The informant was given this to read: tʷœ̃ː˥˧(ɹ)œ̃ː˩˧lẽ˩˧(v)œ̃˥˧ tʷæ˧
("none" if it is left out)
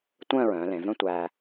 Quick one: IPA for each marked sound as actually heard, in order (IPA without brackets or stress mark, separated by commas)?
ɹ, v